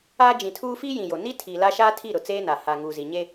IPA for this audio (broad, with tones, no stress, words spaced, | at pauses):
aː˦d͡ʒĩ˨tʰuː˦ fiː˦jĩ˨jo˨ ni˦ tʰiː˨la˦ ʃaː˦tʰiː˦˨ ɾʊ˨t͡seː˦na˨ haː˨ ŋuː˨zi˨ɲe˦